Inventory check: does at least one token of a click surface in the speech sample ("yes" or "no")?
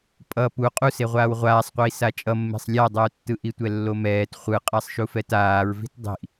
no